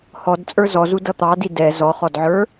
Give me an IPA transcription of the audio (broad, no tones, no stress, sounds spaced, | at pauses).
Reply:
h ɔ d t͡sʼ ə˞ z ɔ z u d ʌ t̪ ɑ d i d ɛ z ɔ χ ɔ d ʕ ə˞